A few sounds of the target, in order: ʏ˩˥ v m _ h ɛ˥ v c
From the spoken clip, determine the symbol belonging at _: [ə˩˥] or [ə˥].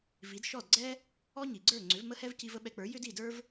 ə˥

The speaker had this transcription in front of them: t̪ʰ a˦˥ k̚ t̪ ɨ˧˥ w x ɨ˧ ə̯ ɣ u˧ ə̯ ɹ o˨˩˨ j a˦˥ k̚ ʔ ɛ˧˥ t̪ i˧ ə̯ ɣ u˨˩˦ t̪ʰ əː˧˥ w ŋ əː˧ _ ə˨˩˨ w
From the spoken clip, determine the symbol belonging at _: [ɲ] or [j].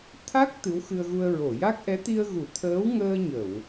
ɲ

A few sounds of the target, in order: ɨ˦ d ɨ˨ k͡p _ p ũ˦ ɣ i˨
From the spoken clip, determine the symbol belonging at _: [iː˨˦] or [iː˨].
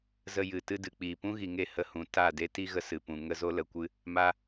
iː˨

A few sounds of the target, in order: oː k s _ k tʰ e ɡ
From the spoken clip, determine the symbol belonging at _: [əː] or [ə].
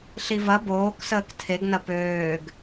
əː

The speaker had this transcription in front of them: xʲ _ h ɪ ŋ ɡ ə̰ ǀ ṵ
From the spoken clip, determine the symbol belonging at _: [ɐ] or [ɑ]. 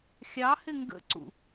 ɑ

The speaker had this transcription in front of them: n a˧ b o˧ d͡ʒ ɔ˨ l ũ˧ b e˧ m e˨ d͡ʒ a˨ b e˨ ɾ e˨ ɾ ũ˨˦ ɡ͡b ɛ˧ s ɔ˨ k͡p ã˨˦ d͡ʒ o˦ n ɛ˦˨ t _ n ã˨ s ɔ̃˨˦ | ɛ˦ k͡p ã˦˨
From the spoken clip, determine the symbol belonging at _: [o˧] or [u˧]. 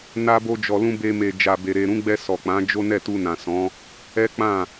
u˧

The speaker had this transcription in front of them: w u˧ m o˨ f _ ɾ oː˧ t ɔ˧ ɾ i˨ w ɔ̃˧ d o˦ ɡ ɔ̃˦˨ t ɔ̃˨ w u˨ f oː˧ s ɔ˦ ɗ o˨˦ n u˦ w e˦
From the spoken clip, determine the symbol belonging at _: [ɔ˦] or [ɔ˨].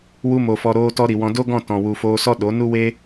ɔ˨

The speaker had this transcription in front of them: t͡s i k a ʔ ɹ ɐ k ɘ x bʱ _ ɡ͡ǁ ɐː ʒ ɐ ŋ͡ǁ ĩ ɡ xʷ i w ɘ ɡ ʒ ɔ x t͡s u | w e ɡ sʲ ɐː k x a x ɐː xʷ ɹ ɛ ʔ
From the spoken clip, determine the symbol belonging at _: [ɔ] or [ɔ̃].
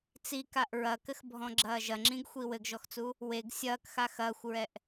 ɔ̃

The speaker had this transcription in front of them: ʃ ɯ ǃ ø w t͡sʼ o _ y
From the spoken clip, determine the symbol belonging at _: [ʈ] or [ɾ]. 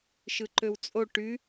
ʈ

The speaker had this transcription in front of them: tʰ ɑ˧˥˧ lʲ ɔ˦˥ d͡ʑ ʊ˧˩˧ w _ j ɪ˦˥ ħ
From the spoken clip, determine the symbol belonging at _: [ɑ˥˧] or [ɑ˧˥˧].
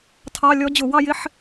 ɑ˥˧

